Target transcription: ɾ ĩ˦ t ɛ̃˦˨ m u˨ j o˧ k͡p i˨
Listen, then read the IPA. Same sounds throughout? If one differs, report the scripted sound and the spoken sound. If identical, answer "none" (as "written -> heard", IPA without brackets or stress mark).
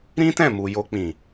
i˨ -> ĩ˨